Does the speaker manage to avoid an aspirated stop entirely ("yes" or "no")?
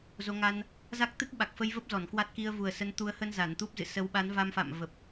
yes